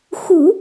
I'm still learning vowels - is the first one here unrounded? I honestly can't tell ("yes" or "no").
no